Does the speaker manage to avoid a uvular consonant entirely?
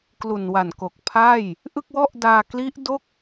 yes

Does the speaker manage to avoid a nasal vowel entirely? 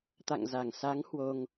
yes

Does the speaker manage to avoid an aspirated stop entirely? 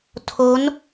no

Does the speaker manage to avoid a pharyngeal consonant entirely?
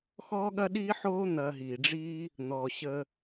no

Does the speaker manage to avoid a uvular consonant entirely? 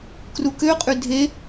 no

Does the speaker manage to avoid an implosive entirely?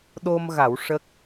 no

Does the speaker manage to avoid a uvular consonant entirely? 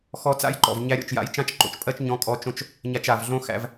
yes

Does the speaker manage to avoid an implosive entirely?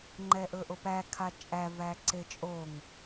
yes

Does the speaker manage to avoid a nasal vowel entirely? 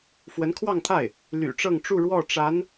yes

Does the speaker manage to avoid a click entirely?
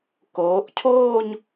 yes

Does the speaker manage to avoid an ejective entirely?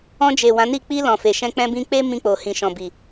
yes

